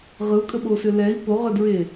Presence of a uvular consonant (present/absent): present